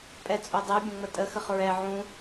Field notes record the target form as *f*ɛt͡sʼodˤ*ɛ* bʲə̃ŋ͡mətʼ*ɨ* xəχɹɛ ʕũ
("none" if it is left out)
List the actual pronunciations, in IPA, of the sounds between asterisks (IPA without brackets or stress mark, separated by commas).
pʼ, ɛ, ə